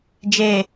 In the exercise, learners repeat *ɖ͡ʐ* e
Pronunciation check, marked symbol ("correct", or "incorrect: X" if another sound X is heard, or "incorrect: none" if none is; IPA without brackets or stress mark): incorrect: d͡ʒ